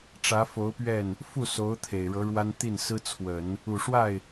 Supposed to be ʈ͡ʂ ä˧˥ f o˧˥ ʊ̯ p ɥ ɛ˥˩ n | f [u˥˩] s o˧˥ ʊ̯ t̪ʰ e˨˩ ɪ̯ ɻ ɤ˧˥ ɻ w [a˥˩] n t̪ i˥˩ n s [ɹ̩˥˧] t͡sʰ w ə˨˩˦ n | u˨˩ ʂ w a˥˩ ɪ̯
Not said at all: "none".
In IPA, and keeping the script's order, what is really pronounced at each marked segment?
u˥˩, a˥, ɹ̩˥

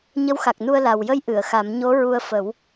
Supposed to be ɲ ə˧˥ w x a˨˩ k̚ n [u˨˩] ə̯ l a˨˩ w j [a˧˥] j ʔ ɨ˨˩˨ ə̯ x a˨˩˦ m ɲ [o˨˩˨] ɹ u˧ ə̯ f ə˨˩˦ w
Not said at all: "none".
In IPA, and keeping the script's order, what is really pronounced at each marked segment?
u˧, ə˧˥, o˧˥

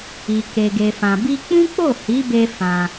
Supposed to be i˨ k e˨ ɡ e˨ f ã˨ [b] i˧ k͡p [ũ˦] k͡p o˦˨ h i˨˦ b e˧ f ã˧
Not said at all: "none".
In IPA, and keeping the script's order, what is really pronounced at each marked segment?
b, ũ˦

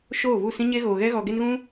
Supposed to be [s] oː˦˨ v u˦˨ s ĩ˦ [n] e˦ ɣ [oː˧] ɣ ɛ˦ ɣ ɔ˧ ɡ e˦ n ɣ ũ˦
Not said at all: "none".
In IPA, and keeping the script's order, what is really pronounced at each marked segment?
ʃ, ɲ, oː˧

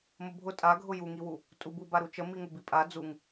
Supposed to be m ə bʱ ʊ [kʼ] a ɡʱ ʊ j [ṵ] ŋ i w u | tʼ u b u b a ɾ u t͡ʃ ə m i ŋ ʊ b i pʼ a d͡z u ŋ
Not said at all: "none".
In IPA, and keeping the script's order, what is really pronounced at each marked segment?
tʼ, u

